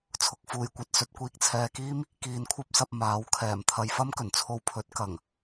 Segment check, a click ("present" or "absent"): absent